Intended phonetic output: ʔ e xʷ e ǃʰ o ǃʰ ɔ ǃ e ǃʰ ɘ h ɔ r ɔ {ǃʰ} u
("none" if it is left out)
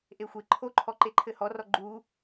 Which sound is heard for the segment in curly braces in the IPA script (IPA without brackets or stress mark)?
ɡ͡ǃ